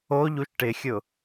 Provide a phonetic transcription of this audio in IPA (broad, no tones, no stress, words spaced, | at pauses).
oʎuʃ ʈɪxʲʊ